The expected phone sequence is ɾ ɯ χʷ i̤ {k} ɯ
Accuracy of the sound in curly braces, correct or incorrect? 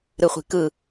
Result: correct